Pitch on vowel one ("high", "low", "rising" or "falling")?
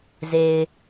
low